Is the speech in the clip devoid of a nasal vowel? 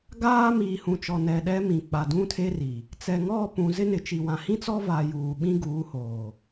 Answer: no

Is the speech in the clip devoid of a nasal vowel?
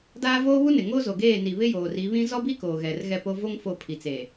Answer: no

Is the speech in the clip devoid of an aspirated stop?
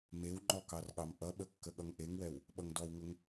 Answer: yes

